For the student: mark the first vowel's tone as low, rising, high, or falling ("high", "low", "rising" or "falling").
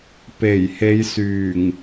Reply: low